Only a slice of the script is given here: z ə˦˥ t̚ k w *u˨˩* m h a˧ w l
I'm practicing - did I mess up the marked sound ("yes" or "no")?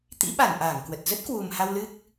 no